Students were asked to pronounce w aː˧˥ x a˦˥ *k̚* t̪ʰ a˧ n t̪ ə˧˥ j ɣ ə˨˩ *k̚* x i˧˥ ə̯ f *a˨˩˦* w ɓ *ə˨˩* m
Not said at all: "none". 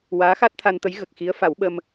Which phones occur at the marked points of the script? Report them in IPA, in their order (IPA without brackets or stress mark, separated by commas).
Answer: t̚, k̚, a˨˩˦, ə˧